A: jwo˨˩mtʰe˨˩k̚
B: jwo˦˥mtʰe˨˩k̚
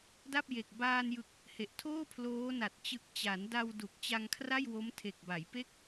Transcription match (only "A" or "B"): B